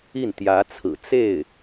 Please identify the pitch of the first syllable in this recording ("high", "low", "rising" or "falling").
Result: falling